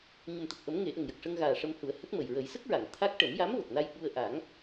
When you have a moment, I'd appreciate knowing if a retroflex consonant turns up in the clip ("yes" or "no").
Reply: yes